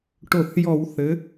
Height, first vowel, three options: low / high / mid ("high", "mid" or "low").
mid